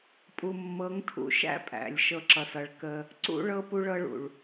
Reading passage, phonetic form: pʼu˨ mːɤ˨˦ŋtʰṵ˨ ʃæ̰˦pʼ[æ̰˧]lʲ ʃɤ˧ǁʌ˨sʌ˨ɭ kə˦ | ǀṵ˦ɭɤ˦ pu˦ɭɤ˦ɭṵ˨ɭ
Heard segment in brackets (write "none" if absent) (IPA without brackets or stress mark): æ̰˨